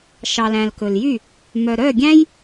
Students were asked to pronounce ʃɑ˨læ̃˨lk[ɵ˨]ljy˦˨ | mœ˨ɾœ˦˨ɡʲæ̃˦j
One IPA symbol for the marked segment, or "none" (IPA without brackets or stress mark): ɵ˨